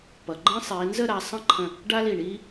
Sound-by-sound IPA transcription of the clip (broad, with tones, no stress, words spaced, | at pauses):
pʌ˩˧ ɡ͡ǃə̃ː˥sˤiː˩˧ nzə˥˧ɾa˩˧ sˤə̃˥˧ǃʰə̃˧˩ | ɖa˥li˧˩ɳiː˥